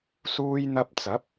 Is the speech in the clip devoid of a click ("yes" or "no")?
yes